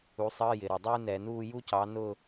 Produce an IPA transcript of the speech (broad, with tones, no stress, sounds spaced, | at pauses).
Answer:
u˩˥ sˤ əː˧˥˧ j ɪ˩ ɾ ʌ˩ dˤ uː˥ n ɛ˧˩˧ n uː˥˨ j u˥ c ɑ˩˥ n ʊː˥˨